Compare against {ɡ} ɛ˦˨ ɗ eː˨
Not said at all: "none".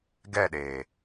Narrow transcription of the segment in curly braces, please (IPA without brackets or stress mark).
ɡ